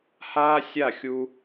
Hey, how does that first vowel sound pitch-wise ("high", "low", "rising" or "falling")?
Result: high